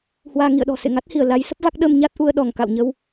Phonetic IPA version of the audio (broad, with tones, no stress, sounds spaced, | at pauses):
h w aː˧ ŋ ḭ˧˨ ə̯ ɗ ɔ̤˨˩ s ḛ˧˨ ŋ a˦˥ t̚ h i˧˩ ə̯ l a˨˦ j s ə˦˥ p̚ v a˦˥ k̚ ɗ ə˧ m ɲ a˦˥ t̚ ʔ u˧ ə̯ ɗ ɔ˧˩ ŋ k a̰˧˨ w ɲ ə˧ w